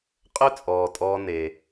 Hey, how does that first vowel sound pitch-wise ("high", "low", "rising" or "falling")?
high